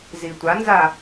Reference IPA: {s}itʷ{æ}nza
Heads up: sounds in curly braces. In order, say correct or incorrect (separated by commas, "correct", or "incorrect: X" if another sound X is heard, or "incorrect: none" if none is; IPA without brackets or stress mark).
incorrect: z, incorrect: a